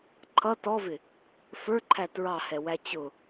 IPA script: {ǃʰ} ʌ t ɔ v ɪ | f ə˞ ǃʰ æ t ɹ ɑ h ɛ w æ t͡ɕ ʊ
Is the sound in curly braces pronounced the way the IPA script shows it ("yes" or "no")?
yes